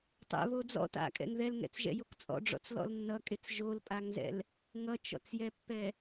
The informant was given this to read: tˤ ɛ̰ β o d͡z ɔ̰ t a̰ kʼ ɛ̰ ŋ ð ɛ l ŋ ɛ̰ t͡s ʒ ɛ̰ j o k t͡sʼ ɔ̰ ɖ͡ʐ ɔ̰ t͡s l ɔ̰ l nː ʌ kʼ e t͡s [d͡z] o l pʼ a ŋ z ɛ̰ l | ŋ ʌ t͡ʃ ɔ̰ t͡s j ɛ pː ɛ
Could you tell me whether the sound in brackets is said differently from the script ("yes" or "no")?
yes